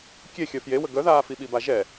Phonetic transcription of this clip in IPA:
kʲ e xʲ œ f j e w ə ɡ œ ð aː f i ɓ i b a ʒ ɛ

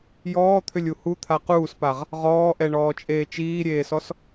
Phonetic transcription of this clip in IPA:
j ɔː t̪ʰ ʏ lʲ u h u t̪ʰ a q uː s p a ʁ | ʁ ɔː ʔ ɛ ɳ ɔː t͡ʃʼ eː t͡ʃ iː ɾʲ eː s ɔ s

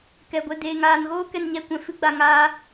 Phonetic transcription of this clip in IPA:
k ɛ˨ ɡʷ ɛ˧ d eː˨ ŋ aː˨ n ɣ oː˦ k ɛ˧ n ɲ ɛ˧ kʷ ɛ̃˨ f ɨ˦ ɡ͡b a˧ ŋ aː˦

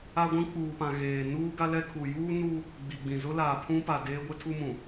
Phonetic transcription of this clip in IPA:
a˦ ɡʷ ĩ˦ k͡p uː˨ p ã˨ ɣ eː˨ n uː˦ ɡ a˦ l ɛ˦ kʰ u˨ j uː˦ n u˦ | ɡ͡b i˨ ɡ͡b ĩ˨ z ʊ˦ l aː˨ pʰ ũ˦ p a˨ d eː˦ ɡʷ e˦ tʰ u˦ m ũ˨

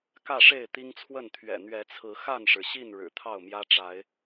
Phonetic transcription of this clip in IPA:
k ä˥˨ ʂ e˥˨ ɪ̯ t̪ i˦ ŋ t͡sʰ w ə˥˨ n t̪ʰ ɥ ɛ̰˨˩ n̪ ɥ ɛ˨˦ t͡sʰ ɹ̩˨˦ x a˥˨ n ʂ ɻ̩˩ ɕ i˥˨ n ɻ ɻ̩˨˩ t̪ʰ ɑ˥˨ ʊ̯ m j ä˦ ʈ͡ʂ a˨˦ ɪ̯

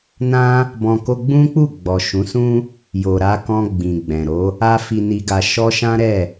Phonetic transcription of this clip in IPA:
n ã˦ | b ɔ̃˧ k o˧ ɡ͡b ũ˦ k͡p u˦˨ ɡ͡b ɔ˨ ʃ ũ˨˦ s ũ˦ | j o˨ ɾ a˧ k ɔ̃˧ ɡ͡b ĩ˨ ɡ͡b ɛ̃˨ ɾ o˨˦ | a˦ f i˧ n i˧ ɡ a˧ ʃ ɔ˧ ʃ ã˦ ɾ ɛ˦˨

